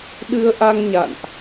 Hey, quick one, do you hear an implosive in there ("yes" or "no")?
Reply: yes